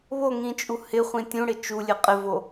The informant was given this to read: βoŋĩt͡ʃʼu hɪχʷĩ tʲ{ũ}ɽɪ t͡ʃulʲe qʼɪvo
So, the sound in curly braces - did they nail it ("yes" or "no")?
yes